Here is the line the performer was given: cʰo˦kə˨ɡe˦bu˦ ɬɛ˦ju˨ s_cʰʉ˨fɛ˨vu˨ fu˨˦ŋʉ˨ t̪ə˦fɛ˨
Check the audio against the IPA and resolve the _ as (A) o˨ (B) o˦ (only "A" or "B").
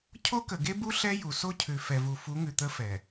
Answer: B